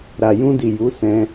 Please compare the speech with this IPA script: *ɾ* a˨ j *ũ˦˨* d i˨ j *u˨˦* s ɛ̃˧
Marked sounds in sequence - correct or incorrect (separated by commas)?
correct, incorrect, correct